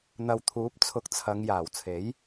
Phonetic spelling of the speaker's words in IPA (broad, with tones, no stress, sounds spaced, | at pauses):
n̪ ɐ˨ w t̪ʰ uː˨˥ p̚ t͡sʰ ʊ˨˥ k̚ t͡sʰ ɐ˨˧ ŋ j aː˨˩ w t͡sʰ e˨˥ j